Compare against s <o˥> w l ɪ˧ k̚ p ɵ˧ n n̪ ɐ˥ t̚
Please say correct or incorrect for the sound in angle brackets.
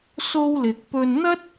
correct